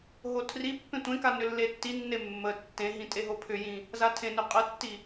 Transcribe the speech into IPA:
ɦotʰripːẽ tʷẽka nʏlːetːinːe mːə tːẽɦĩ tʼeɦopʰʏjĩ | zatʰẽnʏ qʼətːi

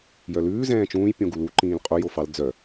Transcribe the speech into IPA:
jœlʉː zɛ̃ːt͡ʃũːj pʲõɡulu ǃĩːlqʼo jofɑl d͡zœ

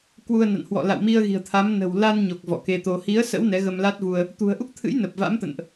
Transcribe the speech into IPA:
kwu˧ə̯na̰˧˨nhwɔ̰˧˨ la̰˧˨wmi˧ə̯ɣi̤˨˩ə̯t̪ʰa˨˦m nə̤˨˩wla˧nɲo˨˩k̚ vɔ̰˧˨ke˧t̪o˧ hi˨˦ə̯ sə̰˧˥w nɛ˨˦ɣə˧mla˦˥t̚vu˧ə̯ | t̪ṳ˨˩ə̯ʔu˦˥k̚t̪ʰɨ̰˧˥j nə˨˩p̚va̰˧˥mt̪ə̰˧˨nʔ

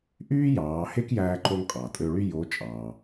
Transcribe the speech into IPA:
ʔyː˥ jɑː˩˧he˥kjæː˧ǃo˧ŋ qʼɑ˩tʼø˧ɭy˥ jo˧˥ t͡ʃʼɑː˩

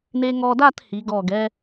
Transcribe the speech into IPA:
ne˧ŋɔ˧da˥˧thi˩˧ ɡɔ˧˩ɡɛ˥

